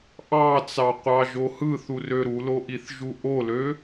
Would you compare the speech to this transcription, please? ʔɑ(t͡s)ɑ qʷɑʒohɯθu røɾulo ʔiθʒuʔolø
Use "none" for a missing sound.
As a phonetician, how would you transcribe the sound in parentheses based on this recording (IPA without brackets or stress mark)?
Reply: t͡s